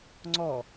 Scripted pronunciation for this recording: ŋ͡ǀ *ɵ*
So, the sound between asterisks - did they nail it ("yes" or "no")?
no